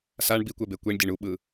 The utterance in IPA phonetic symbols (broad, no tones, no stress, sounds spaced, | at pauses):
s a ɳ b i kʷ ɛ b e kʷ i ɳ dʲ e ɳ u ɓ ɯ